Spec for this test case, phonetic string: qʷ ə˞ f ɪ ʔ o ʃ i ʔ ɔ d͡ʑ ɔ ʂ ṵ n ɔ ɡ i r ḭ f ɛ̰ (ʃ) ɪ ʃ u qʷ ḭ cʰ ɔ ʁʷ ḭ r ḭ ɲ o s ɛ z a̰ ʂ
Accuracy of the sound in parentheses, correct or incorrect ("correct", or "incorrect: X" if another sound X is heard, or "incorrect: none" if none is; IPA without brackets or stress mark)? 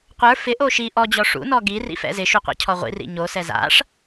incorrect: z